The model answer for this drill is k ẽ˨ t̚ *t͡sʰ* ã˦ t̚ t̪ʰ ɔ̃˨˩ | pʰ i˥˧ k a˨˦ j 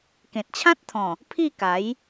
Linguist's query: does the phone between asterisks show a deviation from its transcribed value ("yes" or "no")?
yes